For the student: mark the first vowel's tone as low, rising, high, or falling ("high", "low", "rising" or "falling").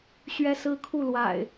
high